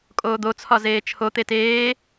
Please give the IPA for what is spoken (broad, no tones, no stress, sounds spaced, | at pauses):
kʼ oː d̪ o t͡sʰ ɒ z eː t͡ʃʰ o t̪ e t eː